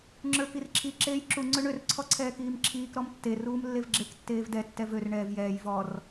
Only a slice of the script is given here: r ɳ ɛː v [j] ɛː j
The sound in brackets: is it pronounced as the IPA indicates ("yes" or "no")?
yes